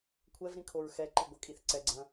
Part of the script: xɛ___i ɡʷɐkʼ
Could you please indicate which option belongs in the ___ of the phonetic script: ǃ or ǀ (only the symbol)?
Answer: ǃ